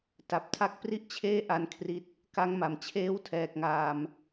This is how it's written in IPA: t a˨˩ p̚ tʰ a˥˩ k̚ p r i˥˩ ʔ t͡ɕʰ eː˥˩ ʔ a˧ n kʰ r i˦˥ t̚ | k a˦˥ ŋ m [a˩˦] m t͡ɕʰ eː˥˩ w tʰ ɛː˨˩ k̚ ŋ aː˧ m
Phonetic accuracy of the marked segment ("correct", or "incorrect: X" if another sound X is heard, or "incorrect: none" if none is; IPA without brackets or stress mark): correct